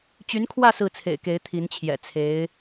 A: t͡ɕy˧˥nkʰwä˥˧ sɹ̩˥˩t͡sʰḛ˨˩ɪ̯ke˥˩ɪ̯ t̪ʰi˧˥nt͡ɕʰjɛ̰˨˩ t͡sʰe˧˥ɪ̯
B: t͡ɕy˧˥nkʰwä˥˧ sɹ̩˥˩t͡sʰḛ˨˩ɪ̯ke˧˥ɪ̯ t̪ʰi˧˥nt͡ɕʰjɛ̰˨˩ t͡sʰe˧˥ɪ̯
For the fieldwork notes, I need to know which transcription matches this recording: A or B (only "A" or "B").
B